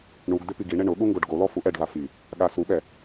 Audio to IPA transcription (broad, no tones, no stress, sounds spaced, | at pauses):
ɳ u ɡ d̪ ɪ p i ɡ i ɳ e ɳ ʊ ɠ u ŋ ɡ o ɖ ɡ o l ɔ f u ʔ ɛ ɖ v a f i | ɠ a s u ɓ ɛ